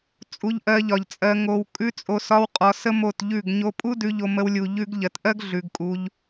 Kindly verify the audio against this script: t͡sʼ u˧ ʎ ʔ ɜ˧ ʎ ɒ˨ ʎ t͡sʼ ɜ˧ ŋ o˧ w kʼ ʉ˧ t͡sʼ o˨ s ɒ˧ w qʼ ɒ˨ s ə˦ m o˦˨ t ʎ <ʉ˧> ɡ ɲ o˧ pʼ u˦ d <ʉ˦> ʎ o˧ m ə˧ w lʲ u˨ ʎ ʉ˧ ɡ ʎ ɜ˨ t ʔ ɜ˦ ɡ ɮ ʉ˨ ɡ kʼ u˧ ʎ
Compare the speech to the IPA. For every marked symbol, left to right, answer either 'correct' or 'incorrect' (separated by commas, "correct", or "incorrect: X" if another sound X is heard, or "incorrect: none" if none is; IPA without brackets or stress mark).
incorrect: ʉ˦˨, incorrect: ʉ˧